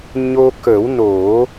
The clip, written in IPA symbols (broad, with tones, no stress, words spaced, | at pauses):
ɲo˧kə˨˩˦w no˨˩˦